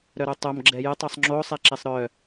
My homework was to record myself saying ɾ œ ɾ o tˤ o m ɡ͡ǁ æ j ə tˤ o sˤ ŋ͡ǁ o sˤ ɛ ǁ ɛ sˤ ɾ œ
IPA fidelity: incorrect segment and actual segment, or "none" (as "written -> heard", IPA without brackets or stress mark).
æ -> ɛ